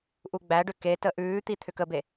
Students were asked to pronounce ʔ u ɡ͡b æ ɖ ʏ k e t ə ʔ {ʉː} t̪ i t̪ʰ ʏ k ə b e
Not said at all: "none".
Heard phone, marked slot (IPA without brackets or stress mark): ʉː